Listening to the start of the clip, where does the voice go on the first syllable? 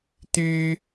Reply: high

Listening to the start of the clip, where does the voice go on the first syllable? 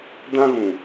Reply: high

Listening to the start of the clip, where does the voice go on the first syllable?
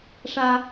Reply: high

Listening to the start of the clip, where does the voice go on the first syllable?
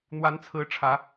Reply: rising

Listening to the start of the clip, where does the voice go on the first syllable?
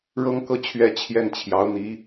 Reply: high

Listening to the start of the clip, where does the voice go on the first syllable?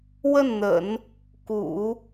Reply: falling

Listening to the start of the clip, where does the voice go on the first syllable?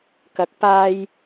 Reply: rising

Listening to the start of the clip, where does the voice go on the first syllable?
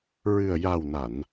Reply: low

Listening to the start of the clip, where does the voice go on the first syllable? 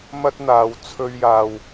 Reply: high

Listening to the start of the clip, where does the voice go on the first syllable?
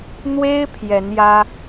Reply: high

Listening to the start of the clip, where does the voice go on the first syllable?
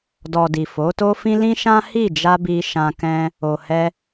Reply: low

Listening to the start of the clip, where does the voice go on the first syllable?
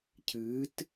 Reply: rising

